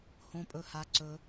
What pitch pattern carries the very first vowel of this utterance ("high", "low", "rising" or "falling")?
high